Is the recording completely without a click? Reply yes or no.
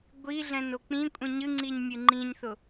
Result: no